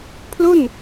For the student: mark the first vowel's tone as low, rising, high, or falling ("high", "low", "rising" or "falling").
falling